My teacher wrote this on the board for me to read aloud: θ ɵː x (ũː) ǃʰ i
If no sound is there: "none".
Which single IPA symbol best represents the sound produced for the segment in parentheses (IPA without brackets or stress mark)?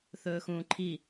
ũː